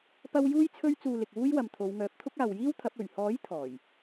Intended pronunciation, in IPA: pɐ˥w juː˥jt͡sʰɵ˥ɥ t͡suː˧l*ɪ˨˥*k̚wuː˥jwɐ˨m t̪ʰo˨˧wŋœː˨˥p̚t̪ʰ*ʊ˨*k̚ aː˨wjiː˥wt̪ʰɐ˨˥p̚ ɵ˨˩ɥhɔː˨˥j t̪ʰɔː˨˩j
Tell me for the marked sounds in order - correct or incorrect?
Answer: incorrect: ɪ˨, incorrect: ʊ˥

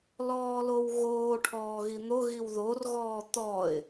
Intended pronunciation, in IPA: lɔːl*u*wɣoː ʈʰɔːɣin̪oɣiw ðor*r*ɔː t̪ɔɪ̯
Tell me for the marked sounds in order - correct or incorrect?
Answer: incorrect: o, incorrect: ɣ

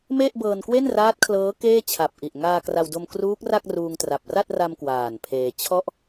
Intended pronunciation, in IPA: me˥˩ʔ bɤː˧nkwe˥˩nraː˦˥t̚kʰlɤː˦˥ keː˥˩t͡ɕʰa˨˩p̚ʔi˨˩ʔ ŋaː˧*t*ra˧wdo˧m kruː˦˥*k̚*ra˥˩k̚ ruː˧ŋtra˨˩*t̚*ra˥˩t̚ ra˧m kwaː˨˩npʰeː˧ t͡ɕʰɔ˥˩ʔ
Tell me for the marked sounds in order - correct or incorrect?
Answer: incorrect: k, correct, incorrect: p̚

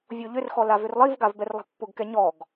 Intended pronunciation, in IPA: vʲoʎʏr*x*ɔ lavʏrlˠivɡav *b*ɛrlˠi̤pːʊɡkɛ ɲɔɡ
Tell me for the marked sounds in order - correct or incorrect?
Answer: correct, correct

